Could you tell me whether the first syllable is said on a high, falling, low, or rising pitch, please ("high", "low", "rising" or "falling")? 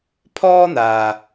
high